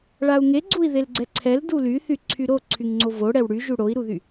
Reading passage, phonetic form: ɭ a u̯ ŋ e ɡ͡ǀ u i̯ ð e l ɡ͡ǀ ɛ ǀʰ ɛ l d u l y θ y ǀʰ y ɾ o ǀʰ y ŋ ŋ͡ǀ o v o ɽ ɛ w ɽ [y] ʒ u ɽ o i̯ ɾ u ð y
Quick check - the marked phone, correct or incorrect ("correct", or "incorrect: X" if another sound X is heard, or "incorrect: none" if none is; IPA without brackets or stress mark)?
correct